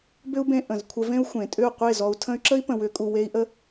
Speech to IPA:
b ʏ˦ u̯ b ẽ˧ ʔ ə̃˨ z kʷʰ ə˧ v ẽ˦ u̯ xʷ ẽ˨ tʼ ʏ˦˨ u̯ qʷ e˦˨ z ɔ˧ u̯ tʰ ə̃˦ y̯ ǁ ə˦ i̯ p ə̃˨ w ʏ˨˦ kʼ u˨ w e˦ i̯ ʔ ə˦

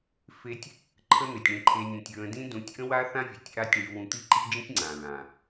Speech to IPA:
f e˦ tʲ | ǃʰ ə˦ n̪ e˨ tʲ ɳ ĩ˧ ǃʰ e˧ nʲ ũ˨ tʲ ɹ ə̃˧ d ĩ˦ d ũ˨˦ tʲ ʔ ə̃˦ w a˦ θ ã˦ vʲ e˨ tʲ ʔ a˦ tʲ ɳ y˧ w ũ˧ t̪ i˦ ǃ i˦ d͡ʒ ə̃˦ tʲ ŋ͡ǀ ã˨ ɹ ã˨

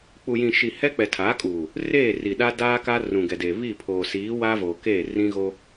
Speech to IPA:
k͡p u˨ j ĩ˨ ʃ i˨ h ɛ˦ k͡p ɛ˨ tʰ a˨˦ kʼ uː˨ | r eː˦˨ r i˨ ɗ a˦ d aː˦ k a˦ r ũ˨ ɡ ɛ˨ d e˨ β i˦˨ pʰ oː˨ s iː˨˦ w aː˦ v oː˨ k eː˦˨ r ĩ˦ ɣ o˦

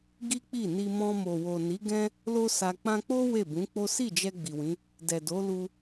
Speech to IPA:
ɡ i˦ k͡p i˦˨ n i˧ m ɔ̃˧ m o˨ w o˨ n i˨˦ ɡ ɛ̃˦ | l o˦ s a˧ k͡p ã˦ k͡p o˦ w e˦˨ b ũ˨˦ k͡p o˦ s i˦˨ d͡ʒ ɛ˧ ɡ͡b i˨ w ĩ˨˦ | d ɛ˨ d o˨˦ l u˧

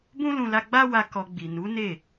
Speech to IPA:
b ũ˦ l ũ˧ l a˧ ɡ͡b a˦ w a˧ k ɔ˧ ɡ͡b i˨ n u˨˦ n e˦˨

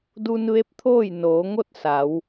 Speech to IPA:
d u˧ n ʋ e˧˥ p̚ t̪ʰ oː˥˨ j n oː˩˧ ŋ o˥˨ t̚ s a˩˧ w

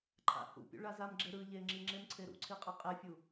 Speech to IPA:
ǃʰ a̰ h ṵ pʲ ṵ ɭ a z a m ɡ͡ǁ e ɾ ɯ ʎ e ŋ͡ǁ i ŋ͡ǁ e m ǀʰ e ɾ ṵ ǀʰ i qʼ ʌ qʼ e fʲ u

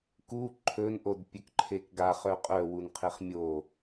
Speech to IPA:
k u ǃʰ ɵ n ʔ o d pʲ ɵ k ǃʰ e k ɡ a χ œ qʼ œ w u n qʰ e χ mʲ o

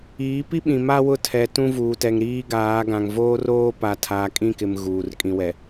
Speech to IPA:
iː˨˦ p i˦ ɓ ĩ˨ m a˦ w ʊ˦˨ tʰ ɛ˨ t ũ˦ v uː˨ t ɛ˨ ŋ ɾ iː˦ ɡ aː˨˦ ɡ ã˨ ŋ v oː˦ r oː˦ p a˨ tʰ aː˨ kʼ ĩ˦˨ k ɪ˨ m ɣ uː˨ r kʼ ĩ˨ w ɛ˨

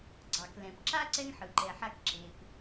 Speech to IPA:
ɡ͡ǀ ɑ˩ k l ɛ̃˩ p ǁ a˥ ǀ ɛ˥ ŋ ħ ɯ˩ ǃ ɛ˨ ħ a˦ k ǁ e˨ p

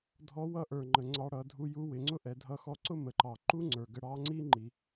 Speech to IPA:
dʱ ɔ˧˥ w ʌ˧˥ ʔ ə˞˩ ŋ͡ǃ ə˩ ŋ͡ǀ ɑ˧ ɽ ʌ˩˧ dʱ u˧ j u˧˥ w ɪ˩˧ ŋ͡ǀ ʊ˥ ʔ ɛ˩˧ dʱ ʌ˧˥ x ɔ˧ ǀ ʊ˥ m ə˩˧ ǃ ɑ˩ ǃ u˥ ŋ͡ǀ ə˞˩ ɡ ə˧ ɽ ɑ˧˥ ŋ͡ǀ i˥ ŋ͡ǃ i˩

